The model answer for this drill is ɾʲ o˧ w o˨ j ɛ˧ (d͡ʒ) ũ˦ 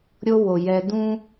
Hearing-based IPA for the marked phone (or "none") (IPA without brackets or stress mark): d